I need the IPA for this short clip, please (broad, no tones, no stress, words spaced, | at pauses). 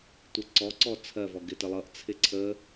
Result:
tʷɪǀɔǀɔ t͡sʰɜvɔ ɡɪtəlˠʌʔt͡sʰɪ ǀʰə